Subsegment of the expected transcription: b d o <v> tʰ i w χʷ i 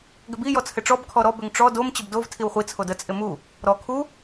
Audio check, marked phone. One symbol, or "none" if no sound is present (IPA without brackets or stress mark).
v